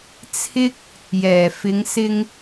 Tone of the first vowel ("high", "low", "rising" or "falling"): high